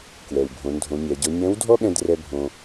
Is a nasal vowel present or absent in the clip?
present